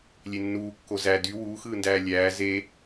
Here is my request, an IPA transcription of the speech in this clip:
lʲ e nː uː kː o z æ d y w uː x ɯː n d æː lʲ æː z e

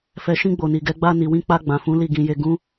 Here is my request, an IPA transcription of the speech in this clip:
f ɛ˨ ʃ ĩ˧ ɡ͡b o˨ n i˨ ɡ ɛ˨˦ ɡ͡b a˧ n i˨ w ĩ˧ k͡p a˧ ɡ͡b ã˨ f ũ˨˦ l i˦˨ ɡ ĩ˧ j e˧ ɡ ũ˦

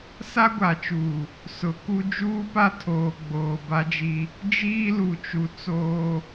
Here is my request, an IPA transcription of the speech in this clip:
s a˦ ɡʷ a˨ t͡ʃ uː˨ | s ʊ˨ k u˦ d͡ʒ uː˦ p a˦ tʰ oː˨ ɡ͡b oː˨ b a˦ d͡ʒ i˦ | d͡ʒ iː˦ l u˨ t͡ʃ u˨ t͡s oː˦

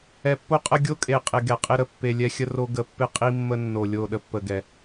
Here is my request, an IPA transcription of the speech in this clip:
ɛ˨ pː o˦ qʼ ə˦ ɡʲ o˦ kʼ e˨ qʼ e˨ ɡ ɛ˨ qʼ ɪ˦ ɾ ə˨ pː e˨ lʲ ɛ˦ xʲ ə˦ r o˦ ɡ ə˨ pː ɪ˦ qʼ i˦ mː ə˦ nː o˨ lʲ o˦˨ ɗ ə˦ pː ə˨ ɡ ɛ˨

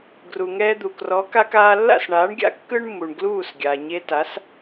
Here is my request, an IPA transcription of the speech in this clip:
ɡ r u˩ ŋ ɛː˧ d̪ u˩ k r ɔ˩˥ k a˧ k aː˧ lː a̰˥˩ s ɳ aː˩˥ ɳ ɡʲ a̰˧ kː ɯ˥ ɳ mː u˩ ɳ ɡ l uː˥˩ s ɡʲ a˩ ɲ e˧ t a˩˥ s

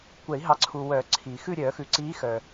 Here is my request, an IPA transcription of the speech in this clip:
kʷ ɛ˨˩˦ i̯ ɦ ɑ˩˥ ǀʰ u˨ w œ˨˩˦ ǀʰ i˨˩˦ x ʉ˦˨ ɾʲ œ˨˩˦ x ʉ˨ ǀ iː˧˥ x œ˨

